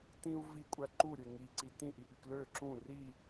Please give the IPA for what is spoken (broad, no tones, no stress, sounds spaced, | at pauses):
t ĩ u̯ v i kʷʼ æ ǃ u ɾʲ e ŋ i ǀ i t ĩ ʔ i ʔ y k l ø ǁ ũ r i